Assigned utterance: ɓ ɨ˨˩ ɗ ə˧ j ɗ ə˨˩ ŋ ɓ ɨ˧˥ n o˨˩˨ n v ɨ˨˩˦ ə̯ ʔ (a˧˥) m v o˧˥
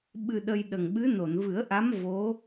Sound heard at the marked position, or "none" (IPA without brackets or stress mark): a˧˥